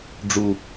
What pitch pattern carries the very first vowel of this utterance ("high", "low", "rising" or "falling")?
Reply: low